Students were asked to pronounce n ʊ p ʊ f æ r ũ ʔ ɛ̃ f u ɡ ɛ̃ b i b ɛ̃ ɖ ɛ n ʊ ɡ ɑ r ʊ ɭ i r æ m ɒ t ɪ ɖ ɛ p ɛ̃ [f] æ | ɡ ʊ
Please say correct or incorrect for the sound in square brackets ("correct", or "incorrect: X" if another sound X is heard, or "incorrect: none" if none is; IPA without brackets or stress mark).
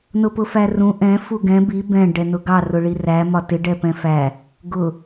correct